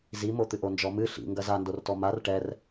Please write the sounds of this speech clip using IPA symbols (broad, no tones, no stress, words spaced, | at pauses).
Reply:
zimot̪ɨʔ ond͡ʒɔmɨ ɬḭ ŋɡɐzandortɔ mar ʈɛr